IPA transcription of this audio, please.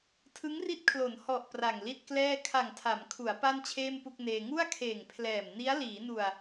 tʰ ɯ˦˥ ŋ r i˦˥ t̚ kʰ l o˩˦ n h ɔ˨˩ ʔ p r a˨˩ ŋ l i˥˩ t̚ k l ɛː˥˩ kʰ a˨˩ ŋ tʰ a˩˦ m kʰ u˩˦ a̯ p a˥˩ n t͡ɕʰ eː˥˩ m p u˥˩ k̚ n eː˧ ŋ u˥˩ a̯ kʰ eː˨˩ ŋ pʰ l ɛː˨˩ m n i˦˥ a̯ l iː˩˦ n u˨˩ a̯

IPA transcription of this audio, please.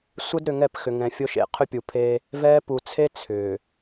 sʷ ə˦ d ɾ ʏ˨ ŋ ɛ˦˨ p x ʏ˨ ŋ ɛ̃˨ fʲ o˦ ʃ ḛ˨˦ qʰ ʏ˦ pʲ u˨ pʰ eː˦ | v ɛː˦ p u˨ t͡sʰ e˦ t͡sʰ ʏː˨

